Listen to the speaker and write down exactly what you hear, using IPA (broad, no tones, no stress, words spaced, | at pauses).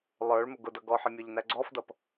lˠə˞ɭ mʊɡʊdʌ ɡɔħɪ mʲɔʎnæɡ͡ǀɔfdʌp